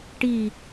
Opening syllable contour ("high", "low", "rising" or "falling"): falling